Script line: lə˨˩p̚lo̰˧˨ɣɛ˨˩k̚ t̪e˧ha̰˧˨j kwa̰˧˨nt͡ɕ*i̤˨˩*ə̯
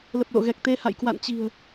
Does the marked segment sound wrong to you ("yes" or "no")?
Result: no